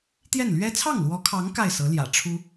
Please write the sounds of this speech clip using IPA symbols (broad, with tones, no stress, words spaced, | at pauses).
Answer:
t̪jɛ˥˩nlɥɛ˥ t͡sʰɑ˥˩ŋlwɔ˧˥kʰɑ˧˥ŋ ka˥˩ɪ̯sɤ˧˥ljä̰˨˩ ʈ͡ʂʰu˥